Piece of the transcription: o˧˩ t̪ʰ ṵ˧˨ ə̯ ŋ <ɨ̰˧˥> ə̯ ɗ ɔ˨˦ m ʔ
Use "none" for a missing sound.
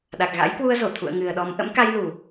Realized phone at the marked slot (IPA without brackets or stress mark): ɨ˨˩